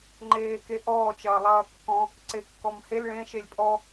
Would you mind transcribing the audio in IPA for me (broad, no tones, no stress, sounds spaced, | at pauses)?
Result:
ŋ͡ǃ eː k e ʔ ɔː t͡ʃ ɐː lˠ ɐː kː ɔ̃ | ǀ e kː ɔ m h e l ɭ ẽ ʃ e lʲ pʼ ɔ